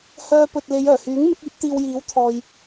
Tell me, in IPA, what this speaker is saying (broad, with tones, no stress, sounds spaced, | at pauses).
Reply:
h œː˧ p ɵ˨ t̚ l e˨˧ j œː˨˩ h yː˨˥ ŋ m ɪ˨˥ k̚ iː˨˥ p̚ t̪ iː˧ w j iː˨˥ w t̪ʰ ɔː˨ j